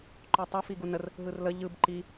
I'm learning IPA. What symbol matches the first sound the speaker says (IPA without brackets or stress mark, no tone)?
ǃ